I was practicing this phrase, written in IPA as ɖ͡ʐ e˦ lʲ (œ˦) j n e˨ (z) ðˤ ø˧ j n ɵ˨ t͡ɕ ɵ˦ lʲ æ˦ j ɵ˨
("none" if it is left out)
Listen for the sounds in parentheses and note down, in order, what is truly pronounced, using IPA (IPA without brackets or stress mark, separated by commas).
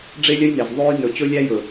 œ˦, z